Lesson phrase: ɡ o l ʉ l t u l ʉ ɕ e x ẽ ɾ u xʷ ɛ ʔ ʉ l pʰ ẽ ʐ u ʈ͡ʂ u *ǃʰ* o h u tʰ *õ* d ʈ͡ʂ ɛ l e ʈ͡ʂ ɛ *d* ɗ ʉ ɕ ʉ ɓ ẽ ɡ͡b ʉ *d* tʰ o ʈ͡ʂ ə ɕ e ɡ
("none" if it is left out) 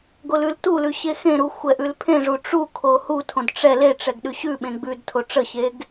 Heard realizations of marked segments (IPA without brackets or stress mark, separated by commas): kʰ, õ, ɡ, d